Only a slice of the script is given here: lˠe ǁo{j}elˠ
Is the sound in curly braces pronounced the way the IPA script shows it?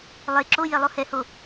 yes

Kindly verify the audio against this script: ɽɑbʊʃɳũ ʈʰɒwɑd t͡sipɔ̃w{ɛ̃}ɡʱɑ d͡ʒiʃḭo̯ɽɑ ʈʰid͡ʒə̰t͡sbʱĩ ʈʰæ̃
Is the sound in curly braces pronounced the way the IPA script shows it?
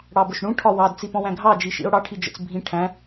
no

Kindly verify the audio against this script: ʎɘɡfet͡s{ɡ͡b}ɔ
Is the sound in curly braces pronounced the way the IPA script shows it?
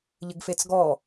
no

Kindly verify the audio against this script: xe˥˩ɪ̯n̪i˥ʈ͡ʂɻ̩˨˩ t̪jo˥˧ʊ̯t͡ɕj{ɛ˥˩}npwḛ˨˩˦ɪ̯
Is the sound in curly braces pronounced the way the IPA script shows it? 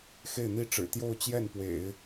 yes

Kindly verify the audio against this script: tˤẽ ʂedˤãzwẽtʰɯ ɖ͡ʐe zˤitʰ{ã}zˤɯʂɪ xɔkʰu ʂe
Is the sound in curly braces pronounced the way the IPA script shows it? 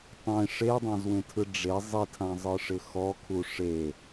yes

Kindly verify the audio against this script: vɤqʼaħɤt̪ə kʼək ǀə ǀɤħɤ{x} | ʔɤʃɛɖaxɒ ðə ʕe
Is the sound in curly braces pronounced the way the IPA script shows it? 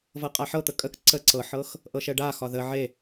yes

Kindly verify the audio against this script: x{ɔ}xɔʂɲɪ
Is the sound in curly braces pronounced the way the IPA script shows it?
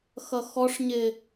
no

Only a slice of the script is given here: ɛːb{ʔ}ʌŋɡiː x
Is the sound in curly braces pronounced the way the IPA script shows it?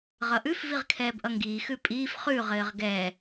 yes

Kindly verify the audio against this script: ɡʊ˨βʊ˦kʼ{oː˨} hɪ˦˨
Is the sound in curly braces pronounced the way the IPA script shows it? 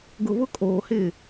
yes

